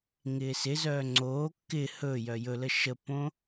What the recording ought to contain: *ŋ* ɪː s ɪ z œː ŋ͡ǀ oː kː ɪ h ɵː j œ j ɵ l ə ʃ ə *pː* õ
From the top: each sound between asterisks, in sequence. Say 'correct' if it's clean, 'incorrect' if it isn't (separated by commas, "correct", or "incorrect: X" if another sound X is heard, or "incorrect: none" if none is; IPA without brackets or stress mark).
correct, correct